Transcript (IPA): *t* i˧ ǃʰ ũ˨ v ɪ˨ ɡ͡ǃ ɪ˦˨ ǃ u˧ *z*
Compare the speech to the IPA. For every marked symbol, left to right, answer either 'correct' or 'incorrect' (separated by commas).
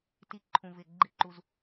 correct, correct